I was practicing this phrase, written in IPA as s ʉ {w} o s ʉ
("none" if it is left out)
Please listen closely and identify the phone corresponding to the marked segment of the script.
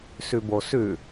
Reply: b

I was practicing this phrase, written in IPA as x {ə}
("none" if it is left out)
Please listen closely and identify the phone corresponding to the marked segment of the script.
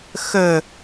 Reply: ə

